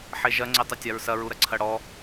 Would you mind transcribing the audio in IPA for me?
ħ e ʒ ɐ ŋ͡ǀ e tˤ ɐ tʲ a ɹ s ɐ ɹ u ɾ ɐ ǀʰ ɐ ɽ ɔ

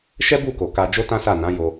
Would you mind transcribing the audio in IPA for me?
ʃ ɛ˦ b u˦˨ k o˨ k a˧ d͡ʒ o˦ t ã˦ s a˦˨ n ã˨˦ j o˧

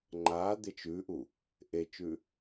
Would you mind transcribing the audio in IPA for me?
ŋ͡ǃ a d̪ ɪ t͡ʃ ʉ ʔ u | ʔ e t͡ʃ ʉ

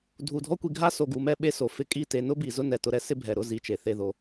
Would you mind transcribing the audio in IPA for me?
dʱ u˨ dʱ ɔ˦ kʷ i˧ ɡʱ a˦ s o˨ ɡ u˨ m ɛ˧ ɓ e˧ s o˨ f ɪ˧ kʼ i˦˨ t e˧ n ʊ˦ b i˨ z ʊ˦ n ɛ˨ t ʊ˧ ɾ ɛ˦ s ɪ˦ bʱ ɛ˨ ɾ ʊ˦˨ z i˧ t͡ʃ e˨ θ e˧ ð o˧

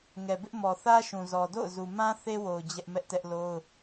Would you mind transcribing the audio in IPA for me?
ŋ ɛ˨ b ɪ˦ ʔ m ɔ˨ θ ä˦ ʃ ũ˨ z ɔ˨ d o̰˦˨ ʊ̯ z u˨ m ã˦ θ e˦ w o˨ ʊ̯ d͡ʑ ɛ˦ ʔ m ɛ˦ ʔ t ɛ˦ ʔ l o˦ ʊ̯

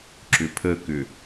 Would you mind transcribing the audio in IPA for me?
ǁ ʏ pʰ ə k ʏ

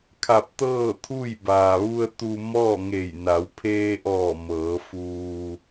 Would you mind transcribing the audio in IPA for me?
kʰ a˧˩ p̚ t̪ ɤː˥˨ t̪ʰ u˥˨ j b aː˩ ʋ u˧ ə̯ t̪ u˧ m ɔː˥˨ ŋ e˧˩ j n a˩˧ w pʰ eː˧ ʔ ɔː˧˩ m ɤː˩˧ f uː˧

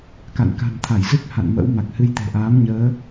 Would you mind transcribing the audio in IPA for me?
k a̰˧˨ n k a̤˨˩ n t̪ʰ a˧˩ j z ɨ˦˥ k̚ h a̰˧˨ n m ə̰˧˥ w m a˨˩ k̚ h ɨ˧ j t̪ e̤˨˩ ʔ aː˨˦ m ɲ əː˨˦

